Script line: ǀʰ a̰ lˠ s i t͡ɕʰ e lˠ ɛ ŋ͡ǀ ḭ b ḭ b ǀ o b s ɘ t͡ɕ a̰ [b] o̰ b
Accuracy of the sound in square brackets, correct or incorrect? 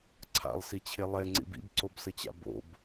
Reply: correct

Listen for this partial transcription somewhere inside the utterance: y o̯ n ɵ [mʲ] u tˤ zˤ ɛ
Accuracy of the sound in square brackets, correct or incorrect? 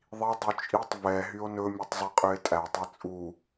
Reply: correct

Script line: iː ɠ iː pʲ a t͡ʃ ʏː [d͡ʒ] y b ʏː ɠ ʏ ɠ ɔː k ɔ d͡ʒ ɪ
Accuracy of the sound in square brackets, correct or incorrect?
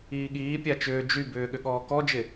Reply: correct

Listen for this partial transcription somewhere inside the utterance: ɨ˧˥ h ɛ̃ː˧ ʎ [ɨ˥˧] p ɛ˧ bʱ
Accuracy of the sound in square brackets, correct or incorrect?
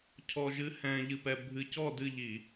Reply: incorrect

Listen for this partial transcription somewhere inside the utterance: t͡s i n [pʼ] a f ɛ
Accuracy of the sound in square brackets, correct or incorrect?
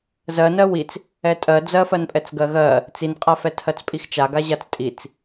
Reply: incorrect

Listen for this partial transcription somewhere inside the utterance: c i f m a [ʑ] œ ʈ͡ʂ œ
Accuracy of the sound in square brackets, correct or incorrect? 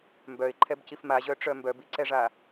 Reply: correct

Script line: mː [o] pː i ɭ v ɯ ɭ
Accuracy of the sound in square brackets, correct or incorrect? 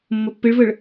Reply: correct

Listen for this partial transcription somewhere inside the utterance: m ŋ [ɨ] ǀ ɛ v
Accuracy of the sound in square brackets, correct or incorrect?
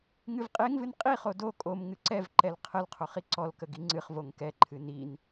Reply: correct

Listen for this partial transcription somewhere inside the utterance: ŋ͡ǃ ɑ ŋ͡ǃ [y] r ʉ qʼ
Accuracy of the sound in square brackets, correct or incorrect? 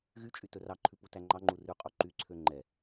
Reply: incorrect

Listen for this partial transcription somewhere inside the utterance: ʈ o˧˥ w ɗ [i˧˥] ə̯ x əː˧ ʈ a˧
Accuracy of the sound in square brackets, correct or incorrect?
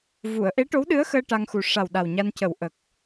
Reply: incorrect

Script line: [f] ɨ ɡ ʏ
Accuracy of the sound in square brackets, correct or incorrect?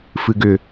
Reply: correct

